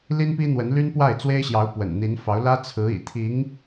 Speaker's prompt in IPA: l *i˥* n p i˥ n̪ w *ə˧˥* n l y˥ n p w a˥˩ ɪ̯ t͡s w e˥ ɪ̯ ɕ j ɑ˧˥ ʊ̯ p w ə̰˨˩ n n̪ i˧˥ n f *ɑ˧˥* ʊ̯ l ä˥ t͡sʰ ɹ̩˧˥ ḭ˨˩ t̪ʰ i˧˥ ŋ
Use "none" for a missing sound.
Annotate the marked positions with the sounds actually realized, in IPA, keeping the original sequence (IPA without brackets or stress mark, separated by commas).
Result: i˥, ə˧˥, ɑ˧˥